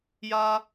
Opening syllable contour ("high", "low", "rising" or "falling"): high